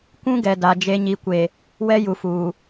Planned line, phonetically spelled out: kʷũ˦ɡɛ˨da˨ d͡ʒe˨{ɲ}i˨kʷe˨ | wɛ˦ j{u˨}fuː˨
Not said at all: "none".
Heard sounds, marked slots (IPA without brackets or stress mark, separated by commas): ɲ, u˨